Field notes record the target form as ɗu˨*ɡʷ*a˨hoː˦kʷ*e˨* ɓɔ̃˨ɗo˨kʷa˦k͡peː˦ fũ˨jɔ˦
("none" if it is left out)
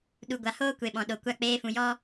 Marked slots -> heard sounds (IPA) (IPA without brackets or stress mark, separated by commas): ɡʷ, e˨